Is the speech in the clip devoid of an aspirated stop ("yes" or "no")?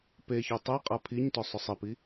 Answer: no